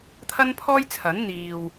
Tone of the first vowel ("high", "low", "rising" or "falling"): high